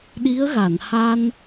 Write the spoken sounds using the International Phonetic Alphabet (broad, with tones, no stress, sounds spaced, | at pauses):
ɗ i˧˥ ə̯ ɣ a˨˩˨ n h a˧ n